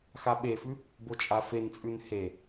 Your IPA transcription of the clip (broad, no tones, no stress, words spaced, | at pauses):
xaɓefʉ | bot͡ʃʼafent͡sʼʉn he